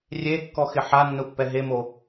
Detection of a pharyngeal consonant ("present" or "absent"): present